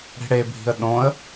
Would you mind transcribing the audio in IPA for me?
ɽi̤ɽebʱi̤ə̯ ɗõə̯

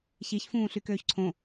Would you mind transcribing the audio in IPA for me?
çiçfũː ɬykøːçǀʰõ

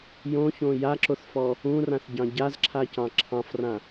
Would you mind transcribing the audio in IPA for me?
jõçõ jaǁoθfɔ | ũrãθɟɑ̃ ɟazǁʰacɑ̃ ǁʰɑ̃frã

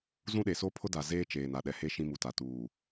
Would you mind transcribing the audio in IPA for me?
zũ˦ɗe˨ so˦pʰʊ˦da˨ zeː˦t͡ʃeː˨n a˨ɗɛ˨he˦ ʃĩ˦mu˨ta˨ tuː˨

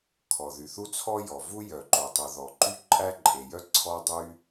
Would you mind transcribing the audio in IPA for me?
kʰɔ˩ðy˩θu˥ t͡sʰɔ˥jɔ˩vu˥ jœ˩ǃo˩tˤu˩ ðɔ˩ǃy˥ǃʼæ˥ ǃʼe˩jœ˥ ǀʰɔ˥dˤy˥

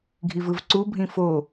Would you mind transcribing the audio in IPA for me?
ɡʱivɯvǀu bʱĩfo

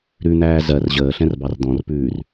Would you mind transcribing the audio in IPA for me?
ɾʉn̪æː zɜr ʑəːɬɛ̃rbɑr d̪ɔ̃rpʉːr

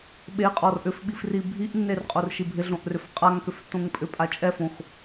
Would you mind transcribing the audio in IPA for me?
ɓeqʼɔr ʔʏfɓifri bʱiʔnːerqʼorʃi bʱɪɮõʔrʏf qʼaŋkʏftːõŋ pʼʏpʼa t͡ʃʼɛfõx

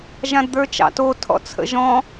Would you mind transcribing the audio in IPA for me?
ʒãdd̪ə˞t͡ʃɑ̰to tʰɔ̰t͡sʰə̰ʒɔ̃

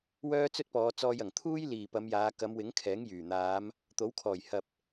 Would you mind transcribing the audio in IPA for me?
wœː˥t͡sɵ˥t̚pɔː˨˧t͡sɔː˧j ɐ˨˩ŋt̪ʰuː˥j liː˨˩ pɐ˨˧mjaː˨˧ kɐ˨˧mwɪ˨˥ŋ kʰɛː˨˥ŋjyː˨˩n̪aː˨˧m | t̪o˨˥wkʰɔː˨˩jhɐ˨p̚

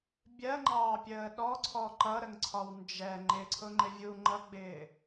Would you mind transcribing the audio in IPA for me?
bʲɜŋ͡ǃɑːpʲəː ɗɔǀʰɔ ǃʌɾəŋǀʰɒw nd͡ʒɛ ŋ͡ǃɪǀʰʊŋ͡ǃɪ vʲu ŋ͡ǃʌɡ͡bɪː

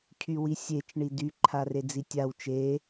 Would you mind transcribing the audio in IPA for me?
cʰywisʲet͡ʃ ɳidy ǃʰared͡zitʲaw t͡ʃe

